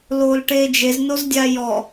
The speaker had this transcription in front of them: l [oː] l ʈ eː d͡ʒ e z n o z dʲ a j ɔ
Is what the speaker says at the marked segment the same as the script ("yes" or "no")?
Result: yes